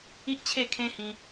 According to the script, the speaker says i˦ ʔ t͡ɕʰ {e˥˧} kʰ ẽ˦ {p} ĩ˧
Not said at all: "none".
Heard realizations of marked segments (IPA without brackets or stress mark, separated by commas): e˥˧, h